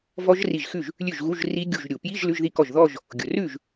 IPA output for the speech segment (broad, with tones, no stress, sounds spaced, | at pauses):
v ɔ˦˥ ʒ r i˧˩ ʒ x ʉ˥˩ ʒ | lʲ ʉ˥˩ ʒ ɣ u˧˥˧ ʒ r i˦˥ ɡʲ u˧˩ ʒ ɾʲ u˩ p j i˧˥˧ ʒ l ʉ˧˥˧ ʒ ð i˥˩ k ɔ˥˩ ʒ ð ɔ˥˧ ʒ | ɡʲ ʊ˩ r ʉ˥˩ ʒ